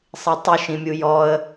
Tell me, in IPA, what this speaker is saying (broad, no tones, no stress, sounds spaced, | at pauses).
sˤ i tˤ u ʃ ĩ mʲ u j ɔ ə̯